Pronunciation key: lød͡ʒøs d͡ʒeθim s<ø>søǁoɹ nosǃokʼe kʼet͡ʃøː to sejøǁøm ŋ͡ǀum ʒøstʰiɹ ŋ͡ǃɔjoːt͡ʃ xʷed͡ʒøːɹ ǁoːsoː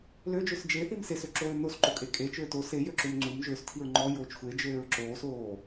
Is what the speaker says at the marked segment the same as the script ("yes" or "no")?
no